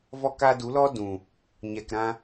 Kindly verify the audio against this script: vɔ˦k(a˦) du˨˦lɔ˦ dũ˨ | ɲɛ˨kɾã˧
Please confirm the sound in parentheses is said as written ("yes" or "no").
yes